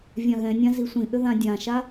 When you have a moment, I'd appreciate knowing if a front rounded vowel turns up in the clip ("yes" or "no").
yes